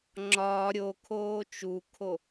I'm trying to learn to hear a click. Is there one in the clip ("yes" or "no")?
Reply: yes